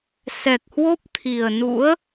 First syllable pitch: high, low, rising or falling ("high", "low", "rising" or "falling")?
low